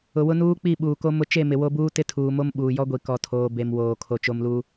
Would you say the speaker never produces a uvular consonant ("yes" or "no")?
yes